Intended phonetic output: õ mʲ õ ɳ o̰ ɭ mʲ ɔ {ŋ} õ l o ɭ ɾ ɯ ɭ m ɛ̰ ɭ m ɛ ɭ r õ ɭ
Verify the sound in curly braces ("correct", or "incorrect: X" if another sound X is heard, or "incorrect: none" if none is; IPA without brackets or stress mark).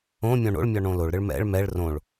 incorrect: ɳ